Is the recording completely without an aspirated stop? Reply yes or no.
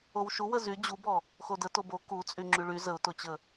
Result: yes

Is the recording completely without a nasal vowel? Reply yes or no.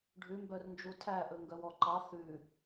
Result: yes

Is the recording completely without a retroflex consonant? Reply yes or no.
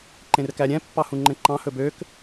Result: yes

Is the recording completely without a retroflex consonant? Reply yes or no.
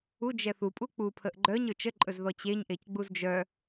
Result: yes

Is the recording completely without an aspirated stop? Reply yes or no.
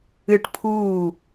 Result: no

